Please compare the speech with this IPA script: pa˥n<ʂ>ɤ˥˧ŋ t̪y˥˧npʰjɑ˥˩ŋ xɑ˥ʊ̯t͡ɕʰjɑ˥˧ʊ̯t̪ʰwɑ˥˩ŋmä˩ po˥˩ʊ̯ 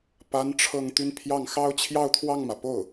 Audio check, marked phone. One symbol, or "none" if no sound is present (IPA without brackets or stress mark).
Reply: ʈ͡ʂʰ